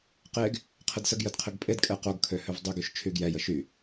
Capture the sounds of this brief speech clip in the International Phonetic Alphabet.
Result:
qeɡ | qʰədsəɡjəd qʰəɡpʼedkʼɛ qoɡkʰø høvdˤyɡyʃ t͡ʃʰyɡjɛjə ʃy

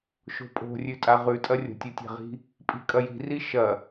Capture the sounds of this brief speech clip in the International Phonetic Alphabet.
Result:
ʃo̤pʼo̤ rʲʉtʼaʁʉtʼɐ rʲo̤tʲutʲa̤ʁi̤ | pʼi̤kʼɐji̤ri ʃɐ

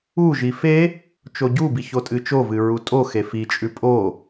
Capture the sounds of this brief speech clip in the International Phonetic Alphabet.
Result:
uʒi fe | t͡ʃoɟubi çotʼɨt͡ʃovɨ ɹutʼoxe fit͡ʃʼʉ pʼo

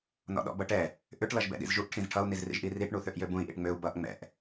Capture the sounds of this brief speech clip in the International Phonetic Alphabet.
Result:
nɔ̰ɗɔ̰bʌʈɛ | ʔʏʈ lʌʒbɛ̰ɗḭzʒuʔ ʈʰĩzʈʰʌu̯ nizrḭʒʔiriʈ ɳuθøʔjøbũi̯ ʔḭʈŋ͡møu̯ bʌʔ ŋ͡mɛ̰ʔ

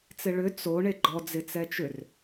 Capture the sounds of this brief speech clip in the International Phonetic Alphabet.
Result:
t͡sɪɭʏ t͡so ɳeɡ͡ǃɔ d͡zɪt͡sɛt͡ʃʏr

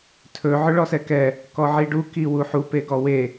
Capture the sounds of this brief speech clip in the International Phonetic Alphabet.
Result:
tʰɵ ʕɵɭɔsɛkɛ | kɔʕiɖu kiwuħu peɡɔwe

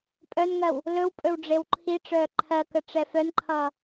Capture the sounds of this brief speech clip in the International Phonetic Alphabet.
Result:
pʼœnŋɜw | lɵwpʼɵw ɖ͡ʐewǃʰiʈ͡ʂœː ǃʰɜkə ʈ͡ʂɛfœnǃʰʌː

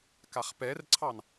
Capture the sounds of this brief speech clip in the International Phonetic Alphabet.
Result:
kaχpɛrǀʰɑn

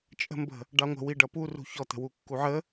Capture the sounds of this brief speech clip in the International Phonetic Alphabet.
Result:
t͡ʃʼə̤mbə̤ | ɖɑŋʷə̤ wiɖʌpu rṳçɔt̪ə̤wu kːuʕə

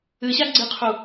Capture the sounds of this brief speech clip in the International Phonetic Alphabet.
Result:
ɨɕaɡ͡ǀɨqʰu

